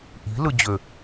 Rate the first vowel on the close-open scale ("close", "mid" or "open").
close